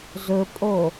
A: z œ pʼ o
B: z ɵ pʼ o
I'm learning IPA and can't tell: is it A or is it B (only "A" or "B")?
B